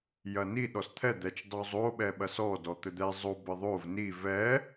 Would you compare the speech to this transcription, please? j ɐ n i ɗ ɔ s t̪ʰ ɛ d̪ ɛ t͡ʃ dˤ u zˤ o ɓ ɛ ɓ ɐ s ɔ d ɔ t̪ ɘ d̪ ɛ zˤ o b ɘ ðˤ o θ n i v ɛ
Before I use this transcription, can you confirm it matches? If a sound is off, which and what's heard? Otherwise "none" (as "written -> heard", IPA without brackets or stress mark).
θ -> v